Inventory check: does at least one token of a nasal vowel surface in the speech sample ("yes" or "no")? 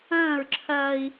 yes